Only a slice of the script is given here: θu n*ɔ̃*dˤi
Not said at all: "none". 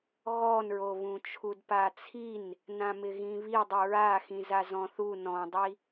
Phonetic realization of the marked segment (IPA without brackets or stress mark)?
ɔ̃